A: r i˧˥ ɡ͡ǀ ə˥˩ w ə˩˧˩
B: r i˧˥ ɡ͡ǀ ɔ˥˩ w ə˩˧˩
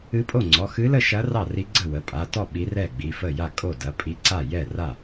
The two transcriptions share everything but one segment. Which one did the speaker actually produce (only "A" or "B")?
A